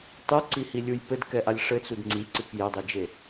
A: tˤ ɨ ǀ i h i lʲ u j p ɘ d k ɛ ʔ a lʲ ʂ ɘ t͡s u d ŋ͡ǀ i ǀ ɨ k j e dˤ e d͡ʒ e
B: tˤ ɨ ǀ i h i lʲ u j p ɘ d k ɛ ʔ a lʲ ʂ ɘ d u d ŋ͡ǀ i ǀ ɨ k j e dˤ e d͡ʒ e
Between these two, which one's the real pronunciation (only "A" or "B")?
A